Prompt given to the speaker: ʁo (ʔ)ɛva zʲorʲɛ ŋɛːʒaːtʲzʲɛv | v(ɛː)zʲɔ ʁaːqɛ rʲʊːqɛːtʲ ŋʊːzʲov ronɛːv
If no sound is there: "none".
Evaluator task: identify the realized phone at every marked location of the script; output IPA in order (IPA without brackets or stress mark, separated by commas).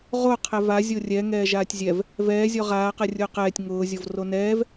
qʰ, ɛː